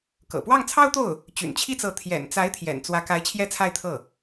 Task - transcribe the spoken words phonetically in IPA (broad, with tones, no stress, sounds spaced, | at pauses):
k ɤ̰˨˩ p w ɑ˥˩ ŋ t͡sʰ ɑ˥ ʊ̯ t̪ o˥˩ ʊ̯ | t͡ɕ y̰˨˩ n t͡ɕʰ i˥ t͡s ɤ˧˥ t̪ʰ j ɛ̰˨˩ n t͡s a˧˥ ɪ̯ t̪ʰ j ɛ̰˨˩ n t͡s w ä˧˥ k a˧˥ ɪ̯ t͡ɕʰ j ɛ˥˧ t͡sʰ a˥˧ ɪ̯ t̪ʰ ɤ˥˩